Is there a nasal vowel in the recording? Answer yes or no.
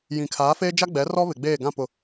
yes